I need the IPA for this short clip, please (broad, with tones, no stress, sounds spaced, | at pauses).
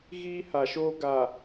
ɣ iː˦ h a˨ ʃ oː˦ ɡ a˨